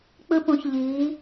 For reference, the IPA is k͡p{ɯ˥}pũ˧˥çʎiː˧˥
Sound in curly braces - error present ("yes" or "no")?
no